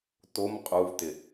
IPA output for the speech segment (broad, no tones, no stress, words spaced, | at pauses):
tom qʼuvtɪ